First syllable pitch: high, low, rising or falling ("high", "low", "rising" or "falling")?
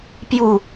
falling